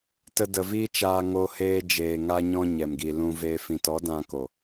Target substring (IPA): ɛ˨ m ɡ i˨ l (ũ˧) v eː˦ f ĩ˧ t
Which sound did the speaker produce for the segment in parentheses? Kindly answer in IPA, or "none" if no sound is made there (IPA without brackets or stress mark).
ũ˧